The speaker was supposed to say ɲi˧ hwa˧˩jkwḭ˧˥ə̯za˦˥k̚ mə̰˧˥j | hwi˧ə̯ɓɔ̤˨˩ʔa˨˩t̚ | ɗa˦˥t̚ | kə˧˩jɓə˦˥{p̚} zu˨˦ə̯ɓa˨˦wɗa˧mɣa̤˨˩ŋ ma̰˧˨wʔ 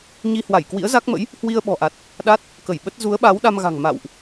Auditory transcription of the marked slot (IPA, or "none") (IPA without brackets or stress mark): t̚